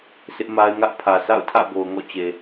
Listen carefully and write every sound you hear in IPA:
sʰ ɪ˦ ʔ m a˦ ɪ̯ ŋ ä˦ ʔ pʰ ä˨ sʰ a̰˦˨ ʊ̯ tʰ ä̰˦˨ b o˨ ʊ̯ ŋ ɔ̰˦˨ t͡ɕ e˨

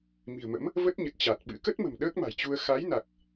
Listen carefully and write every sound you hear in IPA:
m i̤˨˩ ə̯ m ə̰˧˥ m | v ə˦˥ t̚ ɲ ə˨˩ t̚ t͡ɕ a˨˩ t̚ ɓ ɨ̰˧˥ k ə˦˥ t̚ m ə̤˨˩ m ɗ əː˦˥ k̚ m a̤˨˩ j t͡ɕ u˧ ə̯ x a˨˦ j n a˨˩ k̚

